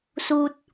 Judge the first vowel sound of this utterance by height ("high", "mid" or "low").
high